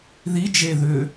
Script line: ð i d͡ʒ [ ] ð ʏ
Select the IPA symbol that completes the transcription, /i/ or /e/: e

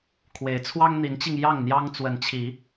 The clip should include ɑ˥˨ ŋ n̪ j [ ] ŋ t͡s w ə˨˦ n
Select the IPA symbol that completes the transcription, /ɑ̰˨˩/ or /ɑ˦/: ɑ˦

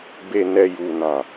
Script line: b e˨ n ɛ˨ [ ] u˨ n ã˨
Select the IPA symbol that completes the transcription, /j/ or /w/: j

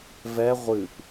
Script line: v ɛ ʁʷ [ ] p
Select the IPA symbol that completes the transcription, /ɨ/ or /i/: ɨ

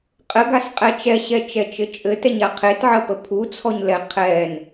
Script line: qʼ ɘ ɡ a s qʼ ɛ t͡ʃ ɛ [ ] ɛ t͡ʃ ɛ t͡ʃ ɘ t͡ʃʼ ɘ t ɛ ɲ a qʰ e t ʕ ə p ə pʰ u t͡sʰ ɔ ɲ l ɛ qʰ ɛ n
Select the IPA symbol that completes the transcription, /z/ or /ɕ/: ɕ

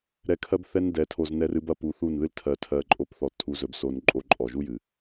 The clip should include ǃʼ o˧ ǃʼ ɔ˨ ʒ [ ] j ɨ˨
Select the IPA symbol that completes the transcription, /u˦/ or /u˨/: u˦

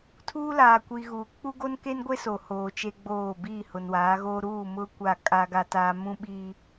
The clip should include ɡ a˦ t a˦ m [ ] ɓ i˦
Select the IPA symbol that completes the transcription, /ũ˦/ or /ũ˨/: ũ˦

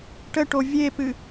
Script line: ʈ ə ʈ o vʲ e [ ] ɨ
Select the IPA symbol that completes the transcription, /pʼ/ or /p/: p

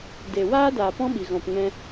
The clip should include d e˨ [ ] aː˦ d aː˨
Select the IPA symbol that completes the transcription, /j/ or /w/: w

